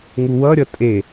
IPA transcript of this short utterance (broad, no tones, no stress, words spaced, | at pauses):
ŋuwʌɾʲʌ tʼe